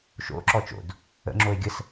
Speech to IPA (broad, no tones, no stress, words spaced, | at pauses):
ʃo̰ ǁɔt͡ʃo̰d | ə̰ ŋ͡ǁoe̯ɡʲəs